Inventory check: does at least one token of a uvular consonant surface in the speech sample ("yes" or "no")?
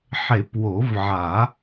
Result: no